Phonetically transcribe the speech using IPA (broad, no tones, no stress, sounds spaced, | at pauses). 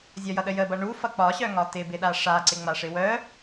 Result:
zʲ ɒ j ʌ ɗ ə j ə b ʌ ɳ u f ʌ k͡p ɒ ɕ œ ŋ ɒ t ɪ b ɪ ɗ a ʂ a ǀ ɪ ŋ͡m a ʂ ɪ w œ